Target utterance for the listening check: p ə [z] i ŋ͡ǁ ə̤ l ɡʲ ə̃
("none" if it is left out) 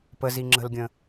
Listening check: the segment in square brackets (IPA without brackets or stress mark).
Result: z